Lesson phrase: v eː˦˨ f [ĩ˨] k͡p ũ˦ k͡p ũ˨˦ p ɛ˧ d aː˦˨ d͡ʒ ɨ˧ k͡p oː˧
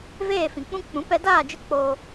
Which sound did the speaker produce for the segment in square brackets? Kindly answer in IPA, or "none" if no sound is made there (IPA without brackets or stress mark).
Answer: ĩ˨